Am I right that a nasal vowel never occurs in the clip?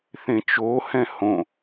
no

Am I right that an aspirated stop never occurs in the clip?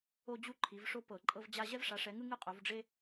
no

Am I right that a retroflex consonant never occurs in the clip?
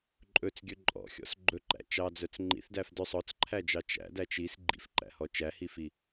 yes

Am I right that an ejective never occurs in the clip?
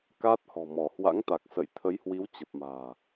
yes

